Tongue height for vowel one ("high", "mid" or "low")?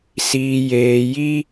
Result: high